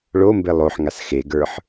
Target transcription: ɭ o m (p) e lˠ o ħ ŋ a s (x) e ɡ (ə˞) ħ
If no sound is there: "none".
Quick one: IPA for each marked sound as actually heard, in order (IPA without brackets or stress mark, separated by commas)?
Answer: b, x, ə˞